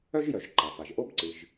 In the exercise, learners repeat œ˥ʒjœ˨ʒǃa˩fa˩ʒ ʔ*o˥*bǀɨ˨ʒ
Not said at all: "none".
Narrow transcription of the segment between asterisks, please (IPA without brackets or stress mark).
o˥